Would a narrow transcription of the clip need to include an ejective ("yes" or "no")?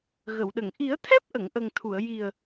no